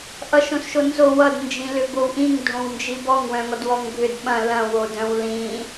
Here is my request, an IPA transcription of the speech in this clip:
ʔ ʌ ʃ õ s ʃ o n z o w ʌ d n d͡ʒ ĩ l ʏ b o w ʔ ĩ ŋ dʱ õ w n d͡ʒ i b ɔ ŋ w œ̃ ŋ ɔ d w ɔ ŋ bʱ ʏ d ɓ ɐ̃ l ɐ̃ w o d œ̃ w l ĩ

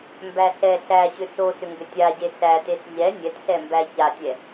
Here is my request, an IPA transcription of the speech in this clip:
m b æ ɬ ɛ ɬ æ ɕ ʏ s o s ʏ ŋ ɡ ʏ tʲ a ɟ e s æ t e s ʎ ɛ nʲ ɛ t ɬ ɛ m b æ ç a tʲ ɛ

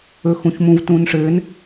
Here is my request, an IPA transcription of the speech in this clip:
ɵ x ũ ç m ũ v t ũː n ʂ ɘː n

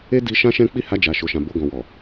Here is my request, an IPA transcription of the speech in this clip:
e˦ d i˧ ʃ ã˦ ʃ ɛ̃˦ k͡p i˦ h a˧ d͡ʒ a˨ ʃ o˨ ʃ ã˨ b o˧ ɡ ɔ̃˨ w ɔ˨

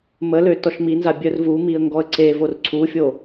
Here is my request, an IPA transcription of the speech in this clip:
m ə l ø t ɔ ʃ m i n z a bʲ œ r v u m i ə̯ ŋ ɡ ɔ ə̯ ǀ e v o r ǀʰ u fʲ o

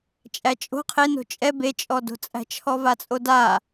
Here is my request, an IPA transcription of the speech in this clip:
t͡ʃʼ æ t͡ʃʼ o̤ qʰ e n o̤ t͡ʃʼ ɛ b e t͡ʃʼ ɔ d o̤ t͡sʼ æ̤ t͡ʃʰ ɔ v a t͡sʼ o d a

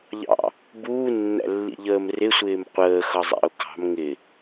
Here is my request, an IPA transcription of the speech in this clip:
ʎ ɑ̰ | b uː nː æ̰ lː ḭ ʎ əː m r ɪ sʷ ɪː m qʷ əː x ʌ zˤ æ̰ ʊ̯ k ɑ̤ m ŋ ɪ

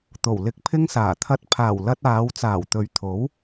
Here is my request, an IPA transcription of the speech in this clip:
t̪ o˨˩ w l ɪ˧ k̚ pʰ ɪ˥ ŋ s aː˨˩ t̪ʰ ɐ˧ t̚ pʰ aː˨˩ w l ɐ˧ t̚ aː˨˧ w t͡s aː˨˩ w t̪ ɵ˨ ɥ t̪ʰ o˨˥ w

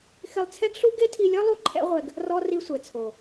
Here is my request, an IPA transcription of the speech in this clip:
x ɪ˧ lˠ t͡sʰ ɛ˦ ɡ ɬ u˦ ɡ e˦ tʰ i˧ lʲ ɔ˦ lˠ u˦ ǃʰ ɛ̰˦ ʁʷ ɛ˧ ɡ | r ɔ˦ r i˧ sʷ ɛ˨ t͡sʰ o˨

